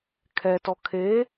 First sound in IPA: kʰ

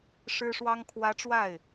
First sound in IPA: ʂ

